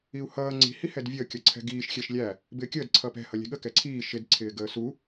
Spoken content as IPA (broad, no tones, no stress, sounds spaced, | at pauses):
i u̯ h ʌː ŋ͡ǀ i̤ h i h ɛ d vʲ əː kʲ ʌ ǀʰ ɛ̤ ɡ iː ʃ xʲ ɛ ʃ lʲ æ | b ɪː kʲ əː d ǀʰ ʌː p ɛ̤ h ʌ lʲ ɛ̤ ɠ ə k ɛ ǀʰ iː ʃ ɪ d ǀʰ ɪː ɡ əː s u